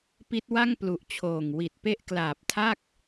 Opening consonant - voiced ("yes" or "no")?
no